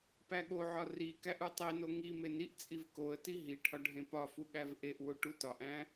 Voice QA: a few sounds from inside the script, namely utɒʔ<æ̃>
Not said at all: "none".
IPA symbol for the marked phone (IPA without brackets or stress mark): æ̃